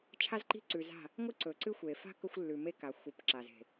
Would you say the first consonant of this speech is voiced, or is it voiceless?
voiceless